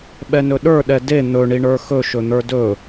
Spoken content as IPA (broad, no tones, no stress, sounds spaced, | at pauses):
ɓ ɛ n ɵ ɗ ə˞ ɗ ɛ d e n̪ ɵ ɳ i ɳ ə˞ x ɵ ʃ ɵ n̪ ə˞ d ɵ